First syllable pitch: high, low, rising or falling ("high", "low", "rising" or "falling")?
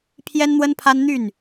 high